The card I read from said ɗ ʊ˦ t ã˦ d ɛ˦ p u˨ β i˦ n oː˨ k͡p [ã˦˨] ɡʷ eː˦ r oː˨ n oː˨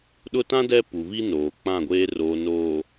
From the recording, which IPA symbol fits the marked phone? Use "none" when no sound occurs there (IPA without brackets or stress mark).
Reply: ã˦˨